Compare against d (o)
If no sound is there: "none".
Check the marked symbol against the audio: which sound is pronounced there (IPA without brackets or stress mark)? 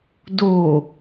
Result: o